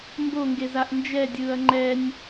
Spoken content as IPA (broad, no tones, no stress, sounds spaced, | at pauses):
m b o ŋ ɡ e z a ʔ n d͡ʒ ɛ dʲ ɯː ɐ̯ ŋ͡ǃ ɛ nʲ